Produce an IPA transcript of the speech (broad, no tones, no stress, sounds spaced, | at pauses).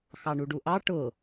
x ɑ ɳ u ɖ u ʔ ɑ ʈ ʊ